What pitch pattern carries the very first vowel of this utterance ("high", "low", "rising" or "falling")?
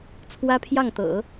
high